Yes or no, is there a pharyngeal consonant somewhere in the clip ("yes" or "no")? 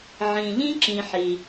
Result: yes